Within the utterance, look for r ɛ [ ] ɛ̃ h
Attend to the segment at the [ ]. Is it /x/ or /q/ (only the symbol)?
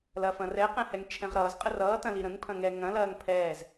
q